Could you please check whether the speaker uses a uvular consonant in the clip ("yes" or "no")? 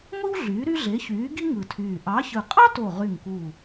yes